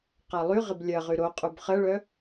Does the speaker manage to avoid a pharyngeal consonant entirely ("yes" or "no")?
yes